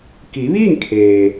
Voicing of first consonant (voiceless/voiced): voiceless